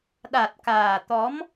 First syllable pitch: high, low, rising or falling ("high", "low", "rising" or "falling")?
low